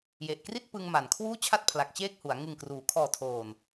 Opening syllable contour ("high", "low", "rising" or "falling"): low